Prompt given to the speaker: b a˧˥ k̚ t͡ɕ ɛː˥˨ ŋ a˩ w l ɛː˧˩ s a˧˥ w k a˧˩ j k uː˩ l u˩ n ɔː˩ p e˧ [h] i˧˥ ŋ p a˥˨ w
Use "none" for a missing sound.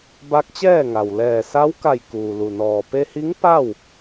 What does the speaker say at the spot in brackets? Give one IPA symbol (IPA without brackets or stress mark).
h